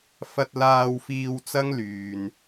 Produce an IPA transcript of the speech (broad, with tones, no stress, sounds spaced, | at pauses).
f ɐ˧ t̚ l aː˧ w f iː˧ w t͡s ɐ˥ ŋ l yː˨ n